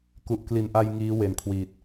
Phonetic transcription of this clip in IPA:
ku˨˩ʔkli˨˩nʔa˧j ŋiː˦˥ we˨˩n kʰwiː˨˩t̚

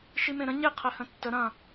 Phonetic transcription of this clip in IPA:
ʃimẽɾə̃ ɲe qʰɛhə̃tːə ɾɐ̃

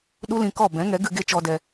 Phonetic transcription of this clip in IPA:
ɗu˦lĩ˧kɔ˦˨ bɛ̃˨˦ŋɛ˨˦ ɡɨ˧ɡe˦˨ t͡ʃɔ˧dɛ˧

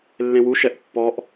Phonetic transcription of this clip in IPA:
lːẽwu ʃɛʔpːɔʔ

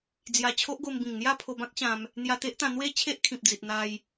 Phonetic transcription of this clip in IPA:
d͡zja˧t͡ɕʰo˦ʔ ɡo˧mbĩ˨˩ŋn̪ja˥˧pʰo˧ bã˦k̚ ɕã˧m | n̪ja˧t̪e˦ʔt̪ã˧ n̪we˦ t͡ɕʰe˦ʔkʰĩ˨p̚d͡zi˨t̚ n̪a˧j

